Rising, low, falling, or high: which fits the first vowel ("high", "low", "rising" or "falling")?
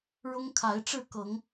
high